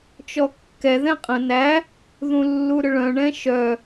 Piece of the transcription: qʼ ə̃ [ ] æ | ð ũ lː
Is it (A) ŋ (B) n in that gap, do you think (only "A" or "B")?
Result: B